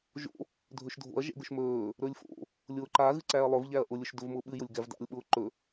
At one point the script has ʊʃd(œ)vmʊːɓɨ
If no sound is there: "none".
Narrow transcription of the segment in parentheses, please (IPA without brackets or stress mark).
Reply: ɵ